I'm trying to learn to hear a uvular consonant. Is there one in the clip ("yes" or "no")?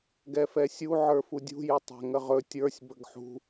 yes